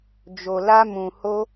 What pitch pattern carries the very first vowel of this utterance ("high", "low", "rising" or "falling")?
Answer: low